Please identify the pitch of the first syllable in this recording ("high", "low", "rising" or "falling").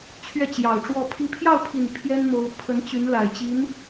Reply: falling